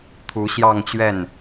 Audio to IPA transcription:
t̪ʰ u˧˥ ɕ j ɑ˥˧ ŋ t͡ɕ ɥ ɛ˥˩ n

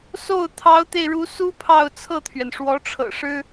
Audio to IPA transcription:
s o˥˩ ʊ̯ t̪ʰ ɑ˧˥ ʊ̯ t̪ e˧ ɪ̯ ɻ u˧˥ s u˥ pʰ ɑ˥˧ ʊ̯ t͡sʰ ɤ˥˩ t̪ʰ ɥ ɛ˩ n ʂ w ɔ˧˥ ʈ͡ʂʰ ɤ̰˨˩ ʂ ɻ̩˥

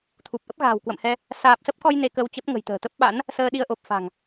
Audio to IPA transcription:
t̪ʰ u˨˩ p̚ ʔ ə˦˥ p̚ ɣ a̤ː˨˩ w k w ə̰˧˨ m h ɛ˧ | s aː˨˩ p̚ s ə˦˥ p̚ k ɔ˧ j n e˧ k ə˧ w t͡ɕ ə˦˥ p̚ ŋ ə̤˨˩ j t̪ ə̤ː˨˩ t̪ ə˦˥ p̚ ɓ a̰˧˥ n | s əː˧ ɗ i˧ ə̯ ʔ o˨˩ p̚ f a̤˨˩ ŋ

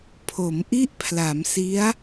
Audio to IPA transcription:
pʰ o˩˦ m ʔ i˥˩ ʔ pʰ l a˩˦ m s i˦˥ a̯

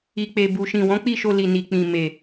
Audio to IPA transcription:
i˨ k͡p e˨ b u˨ ʃ ĩ˨ w ɔ̃˨˦ k͡p i˦˨ ʃ o˧ l i˨ n i˨ k͡p ĩ˨ m e˨

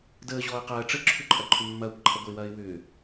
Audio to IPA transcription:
d əː ʑ ɔː ə̯ q ɐː ʈ͡ʂ ə ǁʰ ʏ ǃʼ ɐ ǃʰ ʏ mː ɐː kʷ ǃʰ ɐ ɡʷ ə ɪ̯ w ɐː ɪ̯ w ʏː

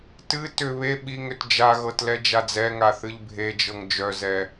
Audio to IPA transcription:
t ɨ t ʏ β e ɓ i ŋ ʏ t d͡ʒ a ɣ ɤ t l ɛ d͡ʒ a d͡z ɛ ŋ a θ ɨ ʎ bʱ e d͡ʒ ɤ ŋ d͡ʒ œ z ɛ

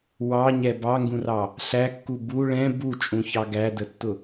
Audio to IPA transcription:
w ɑ ɲ ɛ b ɑ ŋ ɡ ũ r ɑ | ɬ æ kː u b u ɭ ɛ̃ b u t͡ʃʼ ũ ç ɑ ɡ æ d ə tː ʊ

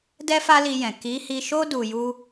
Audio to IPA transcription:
d ɛ˦ f a˦ l i˧ j ɛ̃˨ k i˨˦ h i˧ ʃ o˦ d u˧ j u˦

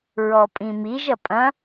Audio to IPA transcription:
ɹ ɔ pʼ ĩ m i ʒ ɐ pʼ ɐ̃

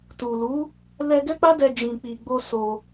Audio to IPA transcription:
t u˨ l u˨˦ | l ɛ˧ ɡ ɛ˦ k͡p a˦ d ɛ˧ d͡ʒ ĩ˨ k͡p i˨ ɡ͡b o˧ s o˧

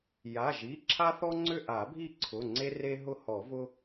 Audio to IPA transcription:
j a˩˧˩ ʒ i˩˧˩ ǁʰ a˦ θ ɔ˦ ŋ͡ǀ ʏ˦˨ ʔ a˨˩˦ bʱ i˦˨ ǀʰ ʊ˩˧˩ ŋ͡ǀ e˦ r e˦ ɦ ʊ˦ h ɔ˨˩˦ v ʊ˦

